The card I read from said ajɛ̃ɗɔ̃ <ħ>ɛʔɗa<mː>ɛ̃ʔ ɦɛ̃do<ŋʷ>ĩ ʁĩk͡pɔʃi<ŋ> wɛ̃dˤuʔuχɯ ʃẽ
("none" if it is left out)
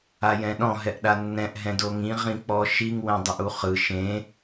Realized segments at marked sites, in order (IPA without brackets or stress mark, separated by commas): ɦ, nː, ŋ, ŋ